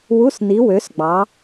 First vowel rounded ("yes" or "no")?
yes